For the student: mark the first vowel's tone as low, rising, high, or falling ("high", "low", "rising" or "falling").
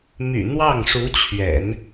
low